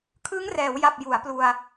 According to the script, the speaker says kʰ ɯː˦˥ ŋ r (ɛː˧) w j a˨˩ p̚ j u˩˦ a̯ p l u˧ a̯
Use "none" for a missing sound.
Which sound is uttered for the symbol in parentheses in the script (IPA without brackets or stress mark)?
ɛː˩˦